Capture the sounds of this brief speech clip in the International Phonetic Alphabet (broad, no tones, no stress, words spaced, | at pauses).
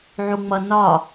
ʕuŋ͡mʌ nɒ